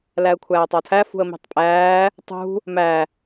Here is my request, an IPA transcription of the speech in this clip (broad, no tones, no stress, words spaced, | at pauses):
læə̯kʷʰæːtˤɒtʰæ fṳə̯mi̤tˤpʼæː | tˤṳ | mæ